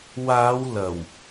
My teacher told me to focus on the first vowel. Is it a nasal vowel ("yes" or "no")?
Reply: no